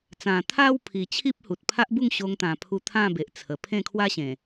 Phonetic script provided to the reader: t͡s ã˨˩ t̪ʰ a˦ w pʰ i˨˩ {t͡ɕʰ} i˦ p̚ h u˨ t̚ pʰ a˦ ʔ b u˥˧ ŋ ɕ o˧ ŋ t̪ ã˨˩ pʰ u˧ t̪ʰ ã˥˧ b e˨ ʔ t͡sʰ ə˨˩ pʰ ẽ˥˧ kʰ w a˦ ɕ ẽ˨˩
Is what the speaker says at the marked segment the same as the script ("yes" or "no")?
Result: yes